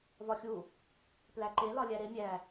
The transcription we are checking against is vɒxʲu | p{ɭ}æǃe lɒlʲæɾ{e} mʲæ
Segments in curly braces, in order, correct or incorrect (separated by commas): incorrect, correct